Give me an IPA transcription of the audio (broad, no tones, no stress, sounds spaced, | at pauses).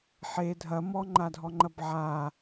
ħ e dʱ ɐ m ɔ ŋ͡ǃ a dʱ ɔ ŋ͡ǃ ɐ b ʕ a